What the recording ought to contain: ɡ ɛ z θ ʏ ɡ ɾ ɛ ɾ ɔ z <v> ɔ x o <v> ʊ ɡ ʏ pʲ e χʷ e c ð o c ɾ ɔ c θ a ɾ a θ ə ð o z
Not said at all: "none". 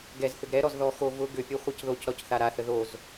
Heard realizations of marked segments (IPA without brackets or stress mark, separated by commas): ð, v